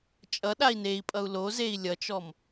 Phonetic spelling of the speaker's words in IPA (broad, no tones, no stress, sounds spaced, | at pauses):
t͡ʃʼ ʌ ɗ a i̯ n e i̯ pʼ ʌ u̯ l o z e i̯ lʲ ʌ t͡ʃ ɔ m